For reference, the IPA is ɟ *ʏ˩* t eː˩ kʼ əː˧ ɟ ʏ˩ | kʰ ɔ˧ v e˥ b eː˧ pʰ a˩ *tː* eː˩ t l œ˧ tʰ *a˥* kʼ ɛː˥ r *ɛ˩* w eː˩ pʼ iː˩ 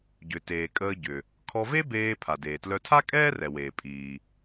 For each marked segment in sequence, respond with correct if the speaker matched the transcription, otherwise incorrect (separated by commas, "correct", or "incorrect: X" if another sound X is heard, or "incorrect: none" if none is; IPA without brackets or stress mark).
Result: correct, incorrect: d, correct, correct